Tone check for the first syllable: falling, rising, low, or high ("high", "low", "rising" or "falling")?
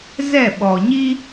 falling